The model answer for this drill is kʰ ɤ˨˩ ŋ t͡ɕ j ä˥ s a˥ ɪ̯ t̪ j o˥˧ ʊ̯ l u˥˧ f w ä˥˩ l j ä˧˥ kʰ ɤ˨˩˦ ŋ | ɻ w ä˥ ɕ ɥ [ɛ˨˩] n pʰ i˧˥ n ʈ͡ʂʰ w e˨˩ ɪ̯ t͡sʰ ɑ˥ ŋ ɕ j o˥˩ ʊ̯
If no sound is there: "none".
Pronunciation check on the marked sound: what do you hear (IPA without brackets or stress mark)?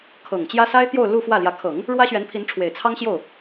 ɛ˧˥